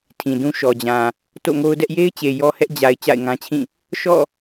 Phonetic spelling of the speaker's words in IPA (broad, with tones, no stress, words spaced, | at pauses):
tʰĩ˨dũ˦ ʃɔ˨d͡ʑã˨ | to̰˦˨ŋo˦ʊ̯dɛ˦ʔ je˦ɪ̯t͡ɕe˨ jɔ˦hɛ˦ʔ d͡ʑa˨ɪ̯ t͡ɕa̰˦˨ɪ̯ŋã˦t͡ɕʰĩ˦˨ | ʃɔ̰˦˨